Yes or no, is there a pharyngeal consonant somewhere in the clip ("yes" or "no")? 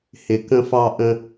no